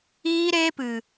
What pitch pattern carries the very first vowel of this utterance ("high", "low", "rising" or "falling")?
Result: high